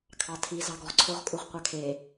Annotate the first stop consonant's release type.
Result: aspirated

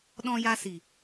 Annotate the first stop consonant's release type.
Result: implosive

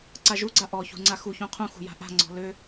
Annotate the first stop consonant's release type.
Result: click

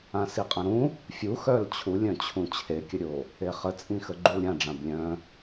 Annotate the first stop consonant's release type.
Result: ejective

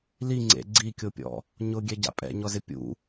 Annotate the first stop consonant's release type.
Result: click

